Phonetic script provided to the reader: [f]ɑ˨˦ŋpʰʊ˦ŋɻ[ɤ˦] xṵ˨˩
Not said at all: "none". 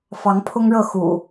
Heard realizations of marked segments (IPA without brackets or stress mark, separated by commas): f, ɤ˥˨